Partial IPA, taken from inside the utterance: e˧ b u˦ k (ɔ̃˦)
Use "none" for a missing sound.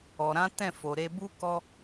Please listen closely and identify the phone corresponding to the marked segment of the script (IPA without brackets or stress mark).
ɔ˦